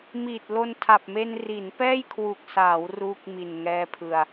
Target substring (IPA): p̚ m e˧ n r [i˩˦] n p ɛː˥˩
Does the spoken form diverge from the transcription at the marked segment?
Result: no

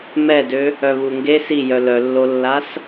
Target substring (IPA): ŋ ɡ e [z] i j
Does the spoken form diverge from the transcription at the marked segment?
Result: yes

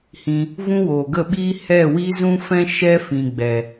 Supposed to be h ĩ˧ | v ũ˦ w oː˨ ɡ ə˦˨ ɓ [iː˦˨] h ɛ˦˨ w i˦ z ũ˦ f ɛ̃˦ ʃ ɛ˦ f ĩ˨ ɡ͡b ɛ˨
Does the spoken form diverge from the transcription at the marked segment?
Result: yes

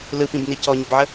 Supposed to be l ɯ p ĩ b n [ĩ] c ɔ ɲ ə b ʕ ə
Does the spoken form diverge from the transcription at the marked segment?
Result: yes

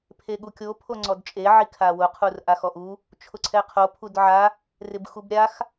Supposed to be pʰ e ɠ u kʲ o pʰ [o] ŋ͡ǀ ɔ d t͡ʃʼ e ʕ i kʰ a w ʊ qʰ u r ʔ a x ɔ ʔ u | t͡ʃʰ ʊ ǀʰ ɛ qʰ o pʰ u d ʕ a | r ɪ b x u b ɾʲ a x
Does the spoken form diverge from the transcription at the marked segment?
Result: no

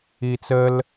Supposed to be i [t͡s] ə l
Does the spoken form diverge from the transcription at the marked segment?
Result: no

